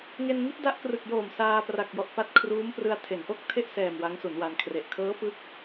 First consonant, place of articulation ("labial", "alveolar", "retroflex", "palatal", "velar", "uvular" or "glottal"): velar